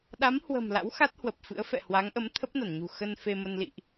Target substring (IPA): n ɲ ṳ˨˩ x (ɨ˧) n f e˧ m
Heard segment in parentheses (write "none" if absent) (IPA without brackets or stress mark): ə˧